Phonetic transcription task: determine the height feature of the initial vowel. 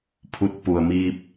high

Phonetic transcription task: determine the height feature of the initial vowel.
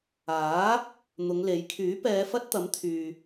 low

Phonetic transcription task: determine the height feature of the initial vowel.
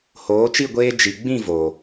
mid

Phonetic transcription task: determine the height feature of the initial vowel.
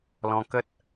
mid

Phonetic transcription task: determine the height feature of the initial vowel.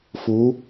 high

